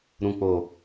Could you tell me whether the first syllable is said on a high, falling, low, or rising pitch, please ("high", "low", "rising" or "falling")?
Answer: low